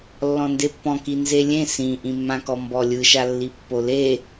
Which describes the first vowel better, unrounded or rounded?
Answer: rounded